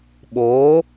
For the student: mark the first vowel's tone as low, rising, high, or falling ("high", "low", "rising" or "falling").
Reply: rising